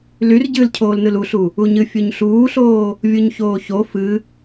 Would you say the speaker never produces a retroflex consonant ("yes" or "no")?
yes